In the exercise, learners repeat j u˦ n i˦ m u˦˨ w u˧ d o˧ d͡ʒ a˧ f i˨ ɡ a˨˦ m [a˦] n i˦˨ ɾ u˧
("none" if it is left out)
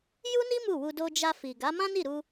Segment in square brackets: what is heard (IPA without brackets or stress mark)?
ã˦